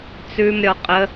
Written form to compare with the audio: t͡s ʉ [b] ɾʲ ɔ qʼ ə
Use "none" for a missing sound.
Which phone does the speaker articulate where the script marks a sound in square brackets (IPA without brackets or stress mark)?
m